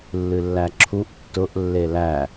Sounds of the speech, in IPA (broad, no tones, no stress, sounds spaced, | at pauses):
lː ɨ lː æ ǁʰ u ʔ tː ʊ ʔ lː e l æ